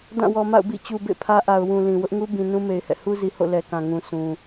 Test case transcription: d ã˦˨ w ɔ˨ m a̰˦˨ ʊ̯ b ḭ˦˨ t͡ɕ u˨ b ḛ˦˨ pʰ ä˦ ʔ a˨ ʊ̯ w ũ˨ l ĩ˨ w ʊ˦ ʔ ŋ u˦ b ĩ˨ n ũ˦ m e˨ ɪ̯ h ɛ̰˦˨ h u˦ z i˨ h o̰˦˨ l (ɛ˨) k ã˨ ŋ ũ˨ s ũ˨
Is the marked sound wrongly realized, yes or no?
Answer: no